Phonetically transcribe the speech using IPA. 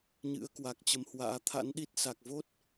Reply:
ɲɨ̰˧˥ə̯kwa˨˩k̚ t͡ɕə˨˦mhwa̰ː˧˥ t̪ʰa̰˧˥nɗi˦˥t̚sa˨˩k̚ vo˦˥t̚

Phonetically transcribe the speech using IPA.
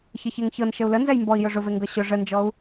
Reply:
çəçeŋçɤn ʃəu̯lə nzɛjmbɔi̯jʊ ʐʊve ŋɡɤɕʊ ʐənd͡ʒɔu̯

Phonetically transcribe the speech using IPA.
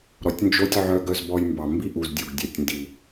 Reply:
ɾɔ˨tʲnd͡ʒo˦tʲ ʕœ˧ ɡœ˧zbɔ˧j mbɑ˨mbi˦ʔu˨zdʲu˨ɡ dʲœ˨tʲndi˨

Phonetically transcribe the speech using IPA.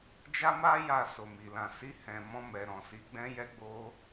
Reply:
d͡ʒa˦ma˦ ja˦˨so˨mi˨ lã˨si˧hɛ̃˨mɔ̃˧ mɛ˨ɾɔ̃˨si˨˦ ɡ͡bɛ̃˧jɛ˧ɡ͡bo˧

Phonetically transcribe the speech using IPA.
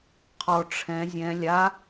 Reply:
qʰɔ ʈ͡ʂʰɛ̃ zʲɛ̃ lʲa

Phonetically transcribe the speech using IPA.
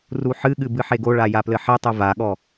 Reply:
ruħɨɠɨ bɨħeɡoɭa japlɘħetˤɨ vaɠɔ

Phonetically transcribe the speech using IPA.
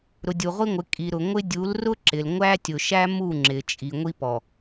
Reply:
ɾʊ˨dʲu˨ʁʷi˦ŋʷɪ˨˦ kʼi˨ɾʊ˨ ŋʷɪ˦ dʲu˨˦lrʊ˦ǁɪ˨l ŋʷæ˦tʲʊ˨ʃæ˦ mu˦˨ŋ͡ǁɪ˨t͡ʃʼi˨ ŋʷi˦pɔ˨

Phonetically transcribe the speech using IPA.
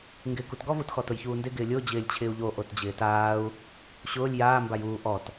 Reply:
ŋɡɪːkutɡɔv utxɔtʊj çuːndɪ ɡɪːlʲʊː d͡ʑɪːlʲt͡ɕʰɪːu̯ʎo ʔotd͡ʑɪːtaːu̯ | ɕʊːlʲ jaːmbaj uː ʔɔt

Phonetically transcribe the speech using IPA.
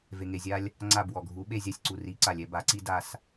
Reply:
ve˩ŋe˩zʲa˧lʲ | ŋ͡ǀa˧˩b wɔ˩ɡʱu˩˧ ɓe˧˩zʲa˧˩sʲǀu˩ ri˩˥ ǀa˩lʲɛ˧ ba˩˧ǀi˧ da˧s

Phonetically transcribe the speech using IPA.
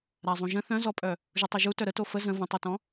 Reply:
ɾazˤũʒə̃ θœ̃zɔpʼœ | ʒutˤuʒutœ ɾəto fə zə̃ və̃tˤutɔ̃

